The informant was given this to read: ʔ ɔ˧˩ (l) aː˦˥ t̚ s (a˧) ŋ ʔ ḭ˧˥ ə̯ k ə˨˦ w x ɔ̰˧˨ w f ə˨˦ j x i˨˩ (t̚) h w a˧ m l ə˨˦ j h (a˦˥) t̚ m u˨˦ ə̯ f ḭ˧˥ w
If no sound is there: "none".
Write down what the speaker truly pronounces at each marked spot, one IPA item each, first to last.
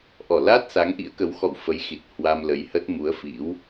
l, a˨˦, t̚, ə˦˥

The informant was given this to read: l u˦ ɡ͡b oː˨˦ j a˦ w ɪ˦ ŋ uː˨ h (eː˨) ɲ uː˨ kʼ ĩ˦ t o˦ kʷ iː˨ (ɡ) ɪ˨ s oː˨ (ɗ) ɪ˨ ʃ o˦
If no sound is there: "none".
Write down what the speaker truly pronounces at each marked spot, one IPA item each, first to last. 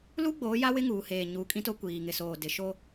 eː˨, ŋ, d

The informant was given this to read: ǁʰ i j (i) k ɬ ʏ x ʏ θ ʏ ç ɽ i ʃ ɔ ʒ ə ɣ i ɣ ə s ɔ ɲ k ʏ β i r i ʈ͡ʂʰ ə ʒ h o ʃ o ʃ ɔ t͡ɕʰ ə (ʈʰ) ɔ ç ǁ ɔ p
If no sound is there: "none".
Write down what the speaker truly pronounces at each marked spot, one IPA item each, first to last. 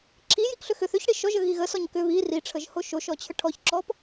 i, ʈʰ

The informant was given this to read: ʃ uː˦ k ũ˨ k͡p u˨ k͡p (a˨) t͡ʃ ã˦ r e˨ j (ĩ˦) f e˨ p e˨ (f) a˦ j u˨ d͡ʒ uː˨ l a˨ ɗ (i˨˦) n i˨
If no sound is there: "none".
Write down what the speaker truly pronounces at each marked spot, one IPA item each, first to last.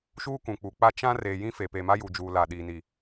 a˦, ĩ˦, m, i˨

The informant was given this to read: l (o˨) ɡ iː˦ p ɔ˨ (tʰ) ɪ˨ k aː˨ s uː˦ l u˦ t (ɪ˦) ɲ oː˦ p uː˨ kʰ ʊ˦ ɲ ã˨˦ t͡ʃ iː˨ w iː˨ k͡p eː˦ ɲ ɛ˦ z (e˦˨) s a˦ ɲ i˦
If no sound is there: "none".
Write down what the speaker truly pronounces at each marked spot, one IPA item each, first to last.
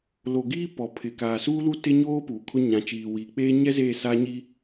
o˨, pʰ, ɪ˦, e˦˨

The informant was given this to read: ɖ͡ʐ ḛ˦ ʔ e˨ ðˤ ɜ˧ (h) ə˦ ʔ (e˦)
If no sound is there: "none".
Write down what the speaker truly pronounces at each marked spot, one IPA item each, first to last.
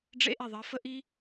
f, i˦

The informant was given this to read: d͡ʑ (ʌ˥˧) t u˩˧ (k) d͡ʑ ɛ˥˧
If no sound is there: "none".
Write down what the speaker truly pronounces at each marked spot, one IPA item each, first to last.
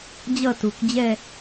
ʌ˥˧, k

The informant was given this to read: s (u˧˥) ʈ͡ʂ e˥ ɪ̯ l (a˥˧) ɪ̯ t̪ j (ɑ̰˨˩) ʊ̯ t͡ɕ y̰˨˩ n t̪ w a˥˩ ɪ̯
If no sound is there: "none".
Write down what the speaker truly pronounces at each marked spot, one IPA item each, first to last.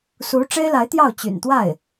u˧˥, a˧˥, ɑ˥˩

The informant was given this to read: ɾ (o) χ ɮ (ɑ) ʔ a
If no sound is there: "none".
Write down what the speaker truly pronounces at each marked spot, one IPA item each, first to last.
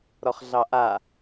ɔ, ɑ

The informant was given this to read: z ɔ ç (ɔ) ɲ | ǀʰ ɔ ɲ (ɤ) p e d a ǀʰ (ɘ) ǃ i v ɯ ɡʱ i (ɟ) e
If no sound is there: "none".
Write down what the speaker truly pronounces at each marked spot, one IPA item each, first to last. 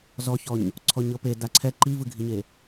ɔ, ɤ, ɛ, ɲ

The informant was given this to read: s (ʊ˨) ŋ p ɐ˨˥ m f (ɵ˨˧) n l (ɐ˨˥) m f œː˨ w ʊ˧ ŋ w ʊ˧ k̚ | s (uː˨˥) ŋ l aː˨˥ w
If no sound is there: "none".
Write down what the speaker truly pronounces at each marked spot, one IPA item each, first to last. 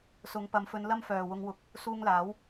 ʊ˨˧, ɵ˨˧, ɐ˥, uː˧

